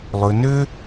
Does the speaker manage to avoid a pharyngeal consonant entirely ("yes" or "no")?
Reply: yes